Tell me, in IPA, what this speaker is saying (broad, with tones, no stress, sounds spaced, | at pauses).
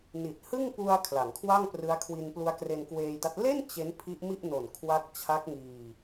n i˨˩ t̚ h ɯ˥˩ ŋ p u˧ a̯ kʰ l a˩˦ ŋ kʰ w a˥˩ ŋ p r ɯ˦˥ a̯ kʰ w i˧ n p l u˦˥ a̯ k r e˧ n k w eː˧ j d a˦˥ t̚ l e˥˩ n t͡ɕ e˦˥ n pʰ i˦˥ ʔ m i˥˩ ʔ n o˨˩ n kʰ w a˦˥ k̚ t͡ɕʰ a˦˥ k̚ ŋ iː˧